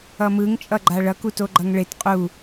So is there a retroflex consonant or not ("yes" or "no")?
yes